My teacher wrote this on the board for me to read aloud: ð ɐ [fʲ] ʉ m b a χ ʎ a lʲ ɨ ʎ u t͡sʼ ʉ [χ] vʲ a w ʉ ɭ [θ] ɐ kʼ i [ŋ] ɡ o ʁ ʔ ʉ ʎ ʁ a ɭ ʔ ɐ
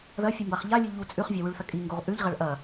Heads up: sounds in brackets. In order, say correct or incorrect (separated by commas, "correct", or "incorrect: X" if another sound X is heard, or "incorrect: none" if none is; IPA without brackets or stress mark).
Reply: correct, correct, correct, correct